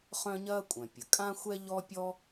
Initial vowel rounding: rounded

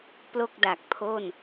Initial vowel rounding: rounded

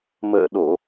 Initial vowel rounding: unrounded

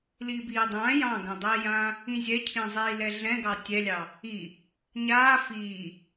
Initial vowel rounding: unrounded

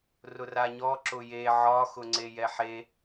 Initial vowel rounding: rounded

